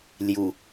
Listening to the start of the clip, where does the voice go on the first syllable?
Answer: low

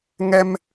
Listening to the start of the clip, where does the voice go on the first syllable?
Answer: high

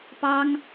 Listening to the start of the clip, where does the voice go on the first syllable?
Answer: high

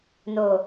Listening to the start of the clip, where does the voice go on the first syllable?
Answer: low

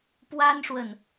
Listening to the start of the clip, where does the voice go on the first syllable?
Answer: high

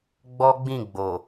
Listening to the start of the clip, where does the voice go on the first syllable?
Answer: high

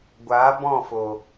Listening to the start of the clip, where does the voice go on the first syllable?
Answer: rising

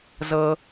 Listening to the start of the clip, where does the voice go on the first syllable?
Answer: low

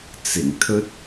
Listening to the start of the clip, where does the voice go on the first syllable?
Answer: low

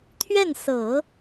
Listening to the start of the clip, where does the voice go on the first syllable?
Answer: falling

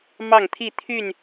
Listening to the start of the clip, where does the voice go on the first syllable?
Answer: falling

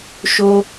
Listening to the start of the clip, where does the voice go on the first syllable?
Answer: high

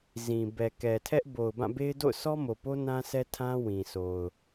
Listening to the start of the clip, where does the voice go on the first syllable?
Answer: low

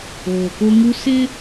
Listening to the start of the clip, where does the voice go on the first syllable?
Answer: low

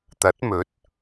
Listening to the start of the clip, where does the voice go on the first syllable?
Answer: rising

